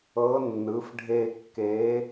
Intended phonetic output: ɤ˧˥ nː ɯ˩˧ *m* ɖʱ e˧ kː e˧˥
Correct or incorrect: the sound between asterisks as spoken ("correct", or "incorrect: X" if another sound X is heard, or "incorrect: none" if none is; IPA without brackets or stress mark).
incorrect: f